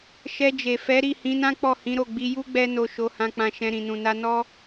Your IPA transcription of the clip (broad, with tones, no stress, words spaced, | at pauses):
ʃɛ˧d͡ʒe˨ fɛ˨˦ɾi˦˨ hĩ˨˦nã˦ k͡pɔ˦˨hĩ˨˦ɾo˦˨ ɡ͡bi˧ju˦ ɡ͡bɛ˧no˨ ʃo˨˦hã˧k͡pã˧ʃɛ̃˧ ɾĩ˨nũ˨na˧nɔ˦